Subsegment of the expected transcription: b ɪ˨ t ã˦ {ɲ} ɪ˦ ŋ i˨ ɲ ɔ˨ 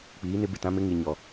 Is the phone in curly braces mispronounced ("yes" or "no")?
yes